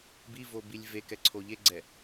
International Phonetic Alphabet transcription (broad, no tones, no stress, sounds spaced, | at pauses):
b i v o b i lʲ v e k ɛ ǀʰ o ʎ e ɡ͡ǀ ɛ